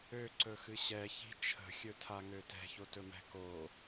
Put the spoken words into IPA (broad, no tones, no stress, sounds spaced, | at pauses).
ø ǀ ɵ x ɨ ɕ ɛ ç i̤ t͡ʃʰ ə̤ xʲ ɵ tʰ a ŋ ø t ɛ̤ ç o t ɵ m ɛ̤ k o